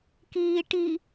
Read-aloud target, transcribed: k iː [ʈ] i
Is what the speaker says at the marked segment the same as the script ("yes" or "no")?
yes